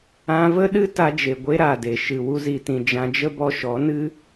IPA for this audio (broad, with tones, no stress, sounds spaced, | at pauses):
ã˧ v ə˦ ɗ ɨ˦ t a˧ d͡ʒ e˨ ɡʷ e˦ ɾ a˨ d e˨ ʃ ɨ˨ w u˧ z i˨ t ĩ˨ d͡ʒ ã˧ d͡ʒ ə˦ b ɔ˧ ʃ ɔ˨˦ n ɨ˦